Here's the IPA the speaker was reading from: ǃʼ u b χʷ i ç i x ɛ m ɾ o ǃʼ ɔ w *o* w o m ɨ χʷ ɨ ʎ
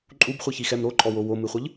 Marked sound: correct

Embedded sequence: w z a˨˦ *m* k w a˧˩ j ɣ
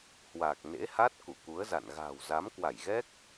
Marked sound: correct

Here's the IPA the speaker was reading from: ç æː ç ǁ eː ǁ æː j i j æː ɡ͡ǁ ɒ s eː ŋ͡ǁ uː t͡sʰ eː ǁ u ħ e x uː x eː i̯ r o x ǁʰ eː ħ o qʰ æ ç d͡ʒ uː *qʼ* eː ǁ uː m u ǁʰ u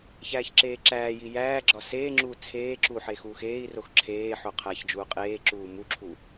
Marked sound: correct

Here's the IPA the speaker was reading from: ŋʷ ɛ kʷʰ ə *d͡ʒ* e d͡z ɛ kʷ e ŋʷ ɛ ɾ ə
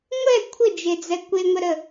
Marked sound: correct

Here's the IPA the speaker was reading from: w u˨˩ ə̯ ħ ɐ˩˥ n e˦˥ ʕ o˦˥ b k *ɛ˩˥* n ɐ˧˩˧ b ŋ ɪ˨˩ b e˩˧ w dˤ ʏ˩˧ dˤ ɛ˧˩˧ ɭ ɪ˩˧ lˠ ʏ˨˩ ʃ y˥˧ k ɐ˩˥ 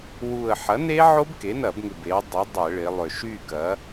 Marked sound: incorrect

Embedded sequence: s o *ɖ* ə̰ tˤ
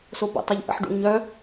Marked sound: incorrect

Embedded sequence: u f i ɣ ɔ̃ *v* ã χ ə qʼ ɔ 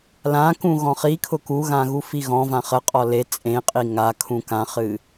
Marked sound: correct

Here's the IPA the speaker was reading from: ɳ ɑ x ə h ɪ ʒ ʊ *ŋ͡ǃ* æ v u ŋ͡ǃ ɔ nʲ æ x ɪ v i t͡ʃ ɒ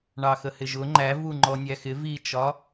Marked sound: correct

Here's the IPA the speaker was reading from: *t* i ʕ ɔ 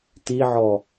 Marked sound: correct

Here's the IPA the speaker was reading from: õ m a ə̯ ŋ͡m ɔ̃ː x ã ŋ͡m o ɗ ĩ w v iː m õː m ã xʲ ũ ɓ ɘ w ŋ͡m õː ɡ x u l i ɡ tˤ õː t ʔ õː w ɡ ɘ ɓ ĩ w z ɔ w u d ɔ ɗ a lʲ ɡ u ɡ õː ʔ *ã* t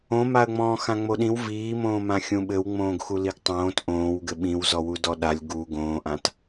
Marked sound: correct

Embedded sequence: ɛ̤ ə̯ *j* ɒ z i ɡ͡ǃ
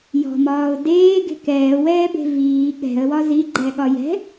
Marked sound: incorrect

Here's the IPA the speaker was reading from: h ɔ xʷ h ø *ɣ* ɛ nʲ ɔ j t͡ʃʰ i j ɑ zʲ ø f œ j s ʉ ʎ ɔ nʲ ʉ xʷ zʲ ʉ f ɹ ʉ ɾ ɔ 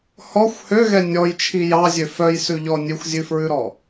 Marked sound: correct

